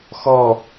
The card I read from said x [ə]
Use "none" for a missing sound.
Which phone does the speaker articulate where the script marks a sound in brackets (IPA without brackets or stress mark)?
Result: ɔ